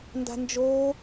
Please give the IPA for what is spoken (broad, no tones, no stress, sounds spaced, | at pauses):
n d a̤ n d͡ʒ oː